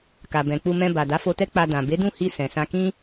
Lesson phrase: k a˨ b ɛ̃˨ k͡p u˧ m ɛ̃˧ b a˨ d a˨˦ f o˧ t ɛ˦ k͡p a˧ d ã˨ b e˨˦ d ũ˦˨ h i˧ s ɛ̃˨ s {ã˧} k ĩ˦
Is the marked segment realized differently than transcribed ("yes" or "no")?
no